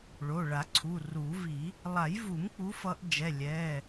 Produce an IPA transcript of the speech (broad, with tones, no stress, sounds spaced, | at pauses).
ɭ o˩˧˩ ɭ a˨˩˦ ǀʰ u˩˧˩ r u˨˩˦ v i˨˩˦ | lˠ a˨˩˦ j v u˨˩˦ m k͡p u˨˦ f ʌ˨˦ ʔ d͡ʒ ɛ˩˧˩ lʲ ɛ˩˧˩